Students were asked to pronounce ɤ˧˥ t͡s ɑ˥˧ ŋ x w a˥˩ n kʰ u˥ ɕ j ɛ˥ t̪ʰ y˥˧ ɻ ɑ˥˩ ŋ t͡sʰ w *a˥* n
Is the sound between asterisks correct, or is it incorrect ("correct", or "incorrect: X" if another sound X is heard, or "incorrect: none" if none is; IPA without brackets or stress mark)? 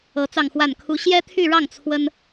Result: incorrect: ə˥